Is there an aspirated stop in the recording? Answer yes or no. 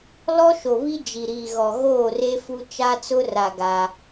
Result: no